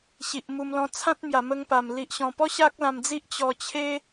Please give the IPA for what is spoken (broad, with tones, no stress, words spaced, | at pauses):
ɕi˨ʔmu˧mlɔ̃˧ t͡sʰã˦t̚ mja˨˩mə˧ŋpa˨˩m li˨ʔɕɔ̃˨˩pɔ˦ ɕa˦k̚lã˧md͡zi˦ʔ t͡ɕɔ˧t͡ɕʰe˦